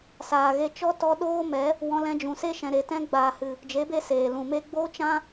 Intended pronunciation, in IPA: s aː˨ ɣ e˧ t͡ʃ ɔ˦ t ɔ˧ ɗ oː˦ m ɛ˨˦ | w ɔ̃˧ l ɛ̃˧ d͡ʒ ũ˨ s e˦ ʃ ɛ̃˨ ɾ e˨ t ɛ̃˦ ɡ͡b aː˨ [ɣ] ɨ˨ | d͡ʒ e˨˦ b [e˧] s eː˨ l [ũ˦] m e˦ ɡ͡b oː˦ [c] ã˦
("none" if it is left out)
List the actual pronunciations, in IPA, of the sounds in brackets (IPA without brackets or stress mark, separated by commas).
h, e˧, ũ˨, t͡ʃ